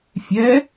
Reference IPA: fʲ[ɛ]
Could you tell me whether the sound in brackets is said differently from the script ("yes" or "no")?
no